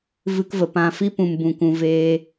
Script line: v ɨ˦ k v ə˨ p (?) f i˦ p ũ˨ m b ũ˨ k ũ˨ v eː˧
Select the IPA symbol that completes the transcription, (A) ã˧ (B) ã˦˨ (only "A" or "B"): A